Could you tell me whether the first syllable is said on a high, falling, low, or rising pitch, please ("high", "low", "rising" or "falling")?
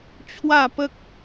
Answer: falling